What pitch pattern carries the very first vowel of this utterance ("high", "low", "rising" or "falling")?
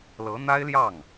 rising